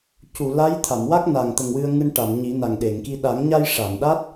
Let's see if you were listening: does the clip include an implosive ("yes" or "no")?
yes